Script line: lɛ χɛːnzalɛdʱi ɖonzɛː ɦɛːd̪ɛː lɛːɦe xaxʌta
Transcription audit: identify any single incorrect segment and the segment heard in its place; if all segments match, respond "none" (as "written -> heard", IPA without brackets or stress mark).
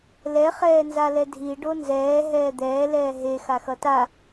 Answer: none